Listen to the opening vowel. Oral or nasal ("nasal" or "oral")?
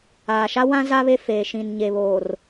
oral